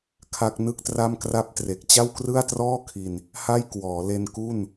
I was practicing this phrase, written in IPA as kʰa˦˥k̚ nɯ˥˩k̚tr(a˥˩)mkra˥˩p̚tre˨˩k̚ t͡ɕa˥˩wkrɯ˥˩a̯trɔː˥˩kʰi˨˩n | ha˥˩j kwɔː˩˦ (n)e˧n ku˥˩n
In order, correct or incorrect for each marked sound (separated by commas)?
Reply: correct, incorrect